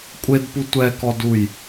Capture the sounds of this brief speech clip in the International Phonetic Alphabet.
kʷʼedpu tʷɛkɔduj

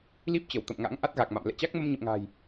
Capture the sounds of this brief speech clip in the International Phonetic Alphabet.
li˦˥p̚t͡ɕə˧˩w t̪ə̰˧˨mŋa̰˧˥ŋ ʔa˦˥t̚ɣa˨˩k̚ma̰˧˨m lɛ̰˧˨t͡ɕa˦˥k̚ mə˧mɲə̰˧˨mŋa̤ː˨˩j

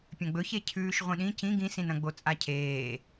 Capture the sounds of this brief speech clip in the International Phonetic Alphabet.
pʲɐ̃ɡ͡bɵçe cʰʉːʃʁʷĩɗĩ cĩ ɡĩsĩnɐ̃ɡ͡bo t͡sʼacʰeː

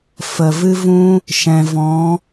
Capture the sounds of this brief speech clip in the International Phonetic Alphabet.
fə˨vɨ˦vũ˦ | ʃɛ̃˨ vɔ̃˨˦

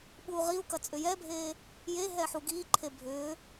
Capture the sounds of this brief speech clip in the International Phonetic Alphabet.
ɓuːʁiu̯kɐ t͡sʼʏjɛbʱeː | jeɦɛ ħuɡiːǃʰe bʱʏː

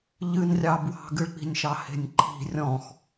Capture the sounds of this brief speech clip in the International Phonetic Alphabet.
ʎɨnrʲɑ bwɑ̤ɡɨɭk͡pi̤nʲʃɑ he̤nʲǃʰi̤ rʲɔ̃x

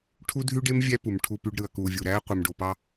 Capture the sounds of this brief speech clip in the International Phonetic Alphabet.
ʈʰu˦dʱy˦ɖe˦m vʲæ˦pu˨m ʈʰu˨py˨ɖ ɾɯ˨ɐ̯kuː˨ vʲu˨ɾæː˦ qʷɯ˨mɖo˨pɑ˦

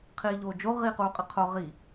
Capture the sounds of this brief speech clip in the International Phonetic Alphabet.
qʰiːʎoːd͡ʒo ʁiːquːqʼɨqʰo ʁi

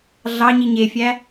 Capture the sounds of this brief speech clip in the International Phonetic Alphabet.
ɮɑ ɲiɲefʲæ

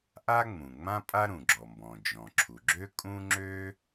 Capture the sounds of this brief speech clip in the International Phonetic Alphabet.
ʔa˥ŋ͡mũ˩ŋ͡mã˥ pʼa˥ɾũ˩ɡ͡ǁɔ˩mbɔ̃˩ d͡ʒɔ̃˩ǁʰu˩ ɡ͡ǁø˥ kʼũ˥ ŋ͡ǁø˥

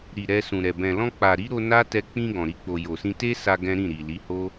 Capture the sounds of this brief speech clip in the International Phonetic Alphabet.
ɾi˨ ɾɛ˧sũ˨ɾɛ˨ bɛ̃˨ lɔ̃˧k͡pa˨ɾi˨˦ ɾo˧ na˦ tɛ˧k͡pĩ˧ ɡɔ̃˨ɾi˧k͡po˨ jo˨sĩ˧te˦sa˧ ɡɛ̃˦ ɾĩ˦˨ɾi˨li˨˦ho˦

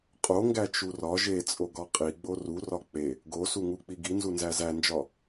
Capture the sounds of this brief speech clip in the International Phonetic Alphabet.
qʼoŋɡæt͡ʃu rɒ ʒet͡sʼoɡɒ qʼiɡ͡bo rurɒ k͡pe | ɡosuŋuk͡pi ɡinzunzæ zænd͡ʒɒ

